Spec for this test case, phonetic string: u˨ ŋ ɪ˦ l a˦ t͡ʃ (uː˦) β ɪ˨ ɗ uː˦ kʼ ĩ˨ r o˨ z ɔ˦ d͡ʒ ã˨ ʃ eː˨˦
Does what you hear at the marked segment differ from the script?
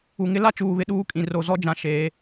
yes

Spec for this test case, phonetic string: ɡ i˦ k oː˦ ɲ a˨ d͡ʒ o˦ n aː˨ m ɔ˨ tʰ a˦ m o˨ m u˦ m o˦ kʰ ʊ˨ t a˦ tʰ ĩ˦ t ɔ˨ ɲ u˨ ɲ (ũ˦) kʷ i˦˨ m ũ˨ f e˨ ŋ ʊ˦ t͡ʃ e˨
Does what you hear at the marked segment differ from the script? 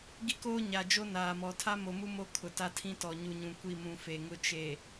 yes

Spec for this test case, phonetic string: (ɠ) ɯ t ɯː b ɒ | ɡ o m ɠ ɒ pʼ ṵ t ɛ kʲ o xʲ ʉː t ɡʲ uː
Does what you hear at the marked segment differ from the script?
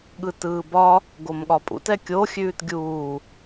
no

